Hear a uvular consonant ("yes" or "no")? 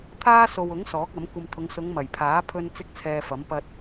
no